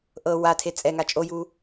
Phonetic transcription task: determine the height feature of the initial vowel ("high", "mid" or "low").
mid